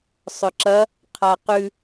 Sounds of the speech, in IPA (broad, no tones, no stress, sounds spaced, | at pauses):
sˤ ɵ ǁ ɐ | qʰ a q ʉ